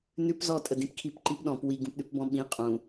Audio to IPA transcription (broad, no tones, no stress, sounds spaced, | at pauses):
n ʉ p z ɔ tʼ ə d ĩ p kʰ i p ǃ i p ɗ ɔ̃ p w i ɡ ũ p ɗ ʉ p b ɔ̃ ɓ ĩ qʼ ũ